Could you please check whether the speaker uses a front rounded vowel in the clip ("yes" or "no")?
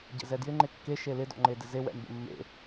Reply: no